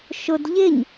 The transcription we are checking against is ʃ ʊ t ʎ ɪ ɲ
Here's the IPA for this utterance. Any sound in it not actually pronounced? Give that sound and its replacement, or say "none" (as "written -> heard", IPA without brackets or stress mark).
t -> d